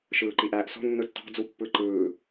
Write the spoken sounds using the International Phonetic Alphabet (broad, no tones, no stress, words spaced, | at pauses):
ʃɯːǃiʔæːʔso̤ nːɯtːɑ̤ d͡zupːɯǃɯː